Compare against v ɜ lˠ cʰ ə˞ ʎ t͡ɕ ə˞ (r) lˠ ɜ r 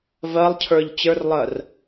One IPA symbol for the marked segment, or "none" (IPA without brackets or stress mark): r